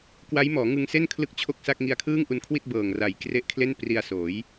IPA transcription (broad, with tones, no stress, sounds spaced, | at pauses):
k w a˦˥ j m ɔː˩˦ ŋ ɯ˧ ŋ s e˥˩ n kʰ l ɯ˥˩ k̚ t͡ɕʰ o˥˩ k̚ s a˥˩ k̚ ŋ i˧ a̯ kʰ ɯː˥˩ ŋ ʔ u˧ n kʰ w i˥˩ t̚ b ɤː˨˩ ŋ r a˨˩ j k r e˦˥ ʔ kʰ l e˥˩ n p r i˧ a̯ s oː˩˦ j